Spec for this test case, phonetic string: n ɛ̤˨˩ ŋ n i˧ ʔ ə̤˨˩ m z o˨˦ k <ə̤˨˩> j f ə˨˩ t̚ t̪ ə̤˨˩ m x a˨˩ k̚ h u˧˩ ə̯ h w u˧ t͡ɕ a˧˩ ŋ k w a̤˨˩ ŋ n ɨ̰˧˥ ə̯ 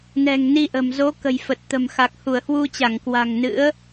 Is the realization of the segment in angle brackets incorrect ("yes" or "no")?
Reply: no